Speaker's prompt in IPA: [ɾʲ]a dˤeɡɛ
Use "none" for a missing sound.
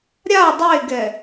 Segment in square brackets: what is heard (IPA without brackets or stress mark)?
ɾʲ